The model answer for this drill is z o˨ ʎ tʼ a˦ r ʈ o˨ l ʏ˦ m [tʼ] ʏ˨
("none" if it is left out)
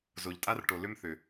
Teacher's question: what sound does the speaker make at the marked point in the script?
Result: θ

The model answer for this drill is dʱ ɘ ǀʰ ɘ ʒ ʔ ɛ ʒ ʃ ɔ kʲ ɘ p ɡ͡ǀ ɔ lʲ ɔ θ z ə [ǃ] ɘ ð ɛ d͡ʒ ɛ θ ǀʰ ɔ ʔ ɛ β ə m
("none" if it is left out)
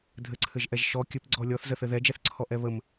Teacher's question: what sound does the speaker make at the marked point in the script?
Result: θ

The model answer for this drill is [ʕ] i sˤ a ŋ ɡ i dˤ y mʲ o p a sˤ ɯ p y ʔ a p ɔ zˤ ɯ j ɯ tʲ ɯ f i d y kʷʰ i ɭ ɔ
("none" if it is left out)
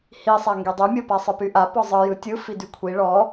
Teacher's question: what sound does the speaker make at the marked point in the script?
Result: h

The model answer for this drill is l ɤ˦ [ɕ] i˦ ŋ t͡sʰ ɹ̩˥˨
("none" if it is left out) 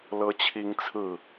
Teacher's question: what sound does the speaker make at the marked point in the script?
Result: t͡ɕʰ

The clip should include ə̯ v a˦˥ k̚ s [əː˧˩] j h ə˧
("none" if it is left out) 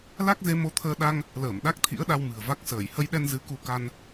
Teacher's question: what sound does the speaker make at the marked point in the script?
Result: əː˧˩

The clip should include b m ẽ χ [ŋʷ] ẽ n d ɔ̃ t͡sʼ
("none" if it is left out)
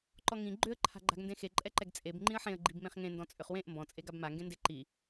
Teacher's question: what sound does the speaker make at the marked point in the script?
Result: ŋ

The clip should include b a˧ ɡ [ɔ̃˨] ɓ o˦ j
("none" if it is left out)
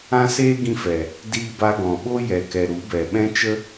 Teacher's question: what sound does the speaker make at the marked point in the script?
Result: ɔ̃˨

